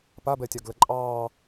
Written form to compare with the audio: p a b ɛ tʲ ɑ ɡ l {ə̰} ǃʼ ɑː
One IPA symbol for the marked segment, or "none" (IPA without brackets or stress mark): ə